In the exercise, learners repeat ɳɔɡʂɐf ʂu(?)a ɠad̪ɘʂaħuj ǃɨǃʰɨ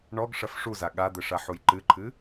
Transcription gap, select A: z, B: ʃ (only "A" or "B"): A